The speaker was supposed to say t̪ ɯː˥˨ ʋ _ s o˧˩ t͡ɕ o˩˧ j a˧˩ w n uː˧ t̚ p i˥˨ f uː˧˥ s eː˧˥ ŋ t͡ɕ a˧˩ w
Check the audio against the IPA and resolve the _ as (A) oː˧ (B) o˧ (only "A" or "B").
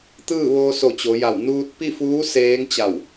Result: A